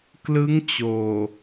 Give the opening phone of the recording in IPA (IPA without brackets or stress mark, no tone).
k